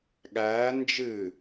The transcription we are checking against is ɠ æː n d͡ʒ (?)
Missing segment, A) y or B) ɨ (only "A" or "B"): B